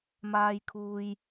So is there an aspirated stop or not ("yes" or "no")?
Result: yes